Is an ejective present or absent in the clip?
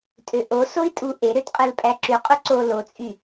present